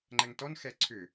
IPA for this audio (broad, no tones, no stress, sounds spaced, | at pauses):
ŋ͡ǃ ɛ ŋ t ɔ n x ɛ ǀʰ ʏ